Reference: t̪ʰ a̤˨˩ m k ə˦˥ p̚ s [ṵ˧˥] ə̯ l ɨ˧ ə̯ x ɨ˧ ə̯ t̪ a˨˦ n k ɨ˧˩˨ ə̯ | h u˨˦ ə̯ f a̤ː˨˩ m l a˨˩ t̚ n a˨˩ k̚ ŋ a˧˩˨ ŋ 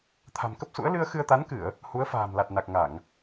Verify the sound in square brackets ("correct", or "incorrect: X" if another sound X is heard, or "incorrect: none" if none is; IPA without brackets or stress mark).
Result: correct